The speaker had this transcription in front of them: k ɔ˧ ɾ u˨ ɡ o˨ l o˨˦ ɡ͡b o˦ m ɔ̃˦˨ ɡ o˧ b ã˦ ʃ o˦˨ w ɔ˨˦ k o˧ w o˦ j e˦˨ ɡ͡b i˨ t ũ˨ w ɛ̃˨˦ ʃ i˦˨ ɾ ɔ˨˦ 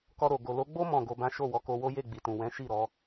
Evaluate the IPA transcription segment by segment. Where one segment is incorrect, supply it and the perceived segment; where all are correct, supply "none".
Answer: u˨ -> o˨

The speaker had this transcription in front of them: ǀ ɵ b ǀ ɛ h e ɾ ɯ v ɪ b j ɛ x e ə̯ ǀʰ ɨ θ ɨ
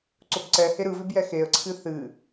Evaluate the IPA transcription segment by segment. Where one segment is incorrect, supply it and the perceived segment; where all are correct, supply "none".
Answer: none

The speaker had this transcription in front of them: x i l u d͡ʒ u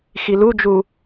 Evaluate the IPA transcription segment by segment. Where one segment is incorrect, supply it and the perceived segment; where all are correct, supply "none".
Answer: none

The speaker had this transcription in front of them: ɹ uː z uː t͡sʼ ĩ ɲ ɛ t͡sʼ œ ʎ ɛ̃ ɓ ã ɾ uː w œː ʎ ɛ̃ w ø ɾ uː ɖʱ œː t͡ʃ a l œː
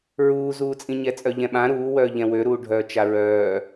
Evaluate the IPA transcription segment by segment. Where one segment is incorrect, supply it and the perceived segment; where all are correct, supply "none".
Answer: l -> ɹ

